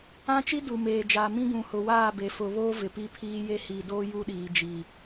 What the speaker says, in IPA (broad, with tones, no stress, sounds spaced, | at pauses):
ã˦ t͡ʃ i˦ d u˨ m eː˨ d͡ʒ aː˨ m ĩ˦ ɡ ũ˨ h ʊ˨ w aː˦˨ b e˨ f ʊ˨ β oː˦ v ɪ˨ p i˦ pʰ iː˦ j e˦ h i˨ d oː˦ j u˦ ɗ iː˨ d͡ʒ i˨